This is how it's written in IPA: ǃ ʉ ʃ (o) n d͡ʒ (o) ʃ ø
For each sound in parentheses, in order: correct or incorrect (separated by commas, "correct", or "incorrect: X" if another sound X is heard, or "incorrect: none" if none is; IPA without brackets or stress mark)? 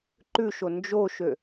correct, correct